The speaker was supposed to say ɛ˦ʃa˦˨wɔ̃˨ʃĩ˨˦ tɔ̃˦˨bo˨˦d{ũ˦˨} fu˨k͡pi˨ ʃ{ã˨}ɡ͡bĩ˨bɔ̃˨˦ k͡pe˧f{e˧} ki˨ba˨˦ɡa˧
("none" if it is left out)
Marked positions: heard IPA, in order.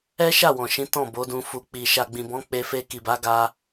ũ˧, a˨, e˧

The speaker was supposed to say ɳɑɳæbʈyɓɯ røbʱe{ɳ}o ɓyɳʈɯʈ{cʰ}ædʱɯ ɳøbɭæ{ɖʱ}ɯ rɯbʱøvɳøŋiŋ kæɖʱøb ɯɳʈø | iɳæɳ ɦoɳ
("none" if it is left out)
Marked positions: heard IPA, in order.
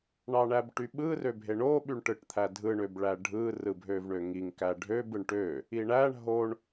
ɳ, t̪ʰ, ɖʱ

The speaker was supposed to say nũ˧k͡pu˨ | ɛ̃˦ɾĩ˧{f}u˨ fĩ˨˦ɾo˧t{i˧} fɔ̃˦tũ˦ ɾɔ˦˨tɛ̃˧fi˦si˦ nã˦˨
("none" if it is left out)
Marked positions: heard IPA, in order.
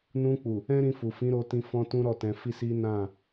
f, ĩ˧

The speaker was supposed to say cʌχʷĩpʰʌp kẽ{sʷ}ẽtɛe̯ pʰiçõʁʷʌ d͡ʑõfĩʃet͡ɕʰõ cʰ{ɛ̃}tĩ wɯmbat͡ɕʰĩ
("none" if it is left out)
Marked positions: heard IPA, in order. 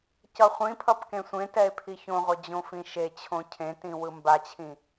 sʷ, ẽ

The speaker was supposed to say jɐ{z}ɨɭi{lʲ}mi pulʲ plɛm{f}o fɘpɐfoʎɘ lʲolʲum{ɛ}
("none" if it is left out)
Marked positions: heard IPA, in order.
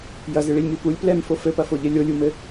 z, lʲ, f, ɘ

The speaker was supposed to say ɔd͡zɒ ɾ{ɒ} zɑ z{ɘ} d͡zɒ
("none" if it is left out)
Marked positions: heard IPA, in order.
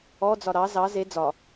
ɑ, e

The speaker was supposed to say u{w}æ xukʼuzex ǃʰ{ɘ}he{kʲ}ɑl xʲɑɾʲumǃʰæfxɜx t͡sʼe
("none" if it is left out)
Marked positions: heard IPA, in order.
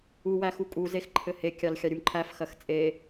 w, ɘ, kʲ

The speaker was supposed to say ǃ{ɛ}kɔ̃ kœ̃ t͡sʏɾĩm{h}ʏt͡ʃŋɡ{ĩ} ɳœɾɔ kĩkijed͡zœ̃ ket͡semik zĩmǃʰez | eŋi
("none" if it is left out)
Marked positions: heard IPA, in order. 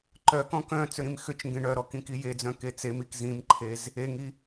œ, x, ẽ

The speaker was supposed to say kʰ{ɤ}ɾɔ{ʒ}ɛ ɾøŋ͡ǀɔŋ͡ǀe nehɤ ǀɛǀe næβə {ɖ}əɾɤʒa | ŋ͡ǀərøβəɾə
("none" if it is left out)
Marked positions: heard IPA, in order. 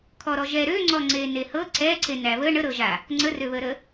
ɔ, ʒ, ɳ

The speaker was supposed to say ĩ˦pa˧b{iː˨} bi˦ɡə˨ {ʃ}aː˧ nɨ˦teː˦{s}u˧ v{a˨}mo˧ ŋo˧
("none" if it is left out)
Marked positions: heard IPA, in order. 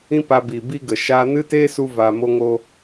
i˨, ʃ, s, a˨

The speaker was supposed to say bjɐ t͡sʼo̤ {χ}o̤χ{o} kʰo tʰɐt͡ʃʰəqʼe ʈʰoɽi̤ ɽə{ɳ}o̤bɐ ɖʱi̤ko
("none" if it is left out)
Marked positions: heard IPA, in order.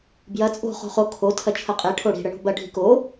χ, o, ɳ

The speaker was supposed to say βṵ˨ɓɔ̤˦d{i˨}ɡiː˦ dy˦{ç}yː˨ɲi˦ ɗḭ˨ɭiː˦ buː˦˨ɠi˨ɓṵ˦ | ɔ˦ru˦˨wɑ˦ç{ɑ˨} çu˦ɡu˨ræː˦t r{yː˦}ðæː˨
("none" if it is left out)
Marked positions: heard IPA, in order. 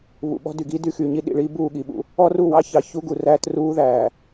y˨, x, ɑ˨, uː˦

